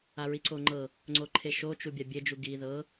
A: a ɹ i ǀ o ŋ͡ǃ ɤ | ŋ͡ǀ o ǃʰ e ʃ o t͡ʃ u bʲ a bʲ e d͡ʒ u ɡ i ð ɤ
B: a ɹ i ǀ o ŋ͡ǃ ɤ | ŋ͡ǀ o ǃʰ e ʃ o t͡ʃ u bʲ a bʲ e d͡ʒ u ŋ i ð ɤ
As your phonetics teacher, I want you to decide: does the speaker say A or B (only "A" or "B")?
A